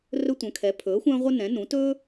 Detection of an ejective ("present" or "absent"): absent